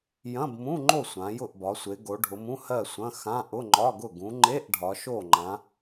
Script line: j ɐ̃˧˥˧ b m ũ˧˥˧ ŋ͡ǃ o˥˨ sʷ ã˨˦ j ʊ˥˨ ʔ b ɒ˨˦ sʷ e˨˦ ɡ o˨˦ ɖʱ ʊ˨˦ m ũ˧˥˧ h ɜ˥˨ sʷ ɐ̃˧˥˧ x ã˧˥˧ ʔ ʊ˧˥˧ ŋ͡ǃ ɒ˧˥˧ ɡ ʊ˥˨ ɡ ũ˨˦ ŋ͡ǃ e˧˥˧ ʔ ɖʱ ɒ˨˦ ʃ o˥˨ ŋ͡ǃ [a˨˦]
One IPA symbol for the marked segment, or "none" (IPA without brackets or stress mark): ã˨˦